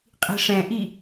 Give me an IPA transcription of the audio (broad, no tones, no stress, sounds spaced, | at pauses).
qʼ i̤ ʂ ɛ̃ ʔ i